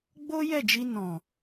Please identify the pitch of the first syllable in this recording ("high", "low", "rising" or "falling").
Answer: high